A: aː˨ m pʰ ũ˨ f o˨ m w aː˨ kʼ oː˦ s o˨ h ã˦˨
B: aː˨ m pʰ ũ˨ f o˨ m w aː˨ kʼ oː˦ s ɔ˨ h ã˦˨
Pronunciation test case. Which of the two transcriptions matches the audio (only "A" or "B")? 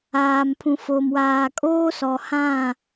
B